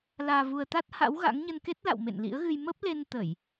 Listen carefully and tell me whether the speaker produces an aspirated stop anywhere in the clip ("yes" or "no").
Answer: no